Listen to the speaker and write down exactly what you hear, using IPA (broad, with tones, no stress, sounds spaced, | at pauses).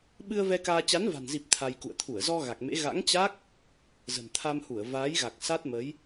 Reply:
ɓ ɨ˧ ə̯ v ɛ˧ k aː˧ t͡ɕ a˨˦ n v a̤˨˩ n z i˨˩ p̚ t̪ʰ a˧ j k ṵ˧˨ ə̯ t̪ʰ u˧˩ ə̯ z ɔ˧ ɣ a˨˩ k̚ m ḛ˧˥ ɣ a̰˧˥ ŋ t͡ɕ a˦˥ k̚ | z ə̤˨˩ n t̪ʰ a˧ m h u˧˩ ə̯ v aː˨˦ j ɣ a˨˩ k̚ s a˦˥ t̚ m ə˨˦ j